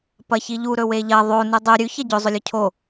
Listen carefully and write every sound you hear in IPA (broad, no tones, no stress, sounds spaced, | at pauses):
p ɐ ç i ʎ u ɾ ɵ w e ʎ ɐ ðˤ o n ʉ dˤ ɵ ɾʲ ʉ ç ɐ ɟ ɵ zˤ ɵ lʲ ɵ cʰ o